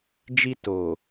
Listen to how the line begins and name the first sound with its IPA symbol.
d͡ʒ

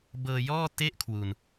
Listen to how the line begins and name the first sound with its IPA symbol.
b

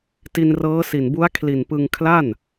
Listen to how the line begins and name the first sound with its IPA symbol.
t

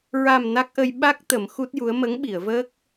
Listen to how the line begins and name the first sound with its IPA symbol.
ɹ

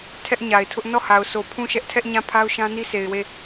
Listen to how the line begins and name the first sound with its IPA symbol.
tʰ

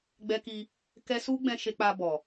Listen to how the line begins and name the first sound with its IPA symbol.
ɡ͡b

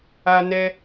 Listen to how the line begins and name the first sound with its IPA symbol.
a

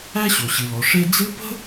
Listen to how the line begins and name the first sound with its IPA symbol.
æ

